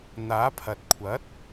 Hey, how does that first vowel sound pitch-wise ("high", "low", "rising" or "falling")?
rising